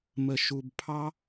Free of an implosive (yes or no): yes